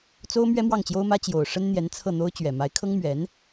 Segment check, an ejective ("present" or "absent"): absent